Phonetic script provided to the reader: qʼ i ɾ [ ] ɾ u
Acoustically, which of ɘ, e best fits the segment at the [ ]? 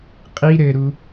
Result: ɘ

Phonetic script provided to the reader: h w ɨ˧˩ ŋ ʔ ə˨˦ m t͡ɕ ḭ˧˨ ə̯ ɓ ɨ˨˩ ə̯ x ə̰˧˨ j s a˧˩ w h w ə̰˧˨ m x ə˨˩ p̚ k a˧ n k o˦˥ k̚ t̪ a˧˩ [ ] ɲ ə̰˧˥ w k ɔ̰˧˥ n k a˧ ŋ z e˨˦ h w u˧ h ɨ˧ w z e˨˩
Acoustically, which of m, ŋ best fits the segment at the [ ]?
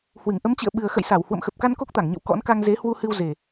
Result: ŋ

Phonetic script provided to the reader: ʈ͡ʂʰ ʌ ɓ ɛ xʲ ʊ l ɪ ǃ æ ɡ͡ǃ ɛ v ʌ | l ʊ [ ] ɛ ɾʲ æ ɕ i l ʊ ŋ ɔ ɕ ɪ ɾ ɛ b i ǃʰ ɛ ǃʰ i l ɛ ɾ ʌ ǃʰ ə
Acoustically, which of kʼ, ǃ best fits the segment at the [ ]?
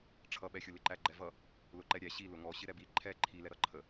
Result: ǃ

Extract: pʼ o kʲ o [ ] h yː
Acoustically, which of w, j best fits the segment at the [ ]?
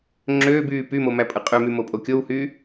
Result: w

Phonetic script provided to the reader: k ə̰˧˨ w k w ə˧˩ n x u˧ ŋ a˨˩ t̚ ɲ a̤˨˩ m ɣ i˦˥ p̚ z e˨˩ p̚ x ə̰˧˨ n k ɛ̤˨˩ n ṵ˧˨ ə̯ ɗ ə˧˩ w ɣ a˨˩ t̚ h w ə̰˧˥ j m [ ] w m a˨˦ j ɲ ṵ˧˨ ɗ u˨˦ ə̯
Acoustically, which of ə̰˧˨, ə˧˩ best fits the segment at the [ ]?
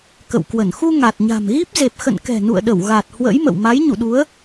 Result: ə̰˧˨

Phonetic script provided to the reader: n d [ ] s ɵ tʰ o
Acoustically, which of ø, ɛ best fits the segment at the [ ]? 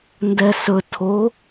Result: ɛ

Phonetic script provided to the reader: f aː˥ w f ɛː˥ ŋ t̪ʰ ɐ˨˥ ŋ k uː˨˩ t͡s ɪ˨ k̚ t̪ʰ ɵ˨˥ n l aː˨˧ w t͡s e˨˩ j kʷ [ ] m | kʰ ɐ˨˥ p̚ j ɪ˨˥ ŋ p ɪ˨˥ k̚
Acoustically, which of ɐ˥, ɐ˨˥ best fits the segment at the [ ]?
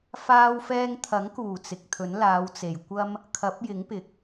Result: ɐ˥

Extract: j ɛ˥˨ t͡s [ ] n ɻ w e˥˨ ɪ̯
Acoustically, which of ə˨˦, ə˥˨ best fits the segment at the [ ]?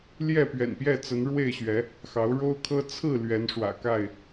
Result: ə˨˦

